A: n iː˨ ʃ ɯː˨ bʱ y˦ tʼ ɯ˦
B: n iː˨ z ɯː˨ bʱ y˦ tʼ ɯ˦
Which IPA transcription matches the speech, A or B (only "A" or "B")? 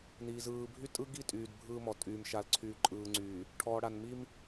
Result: B